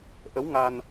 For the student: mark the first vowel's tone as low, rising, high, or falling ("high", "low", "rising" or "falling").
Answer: rising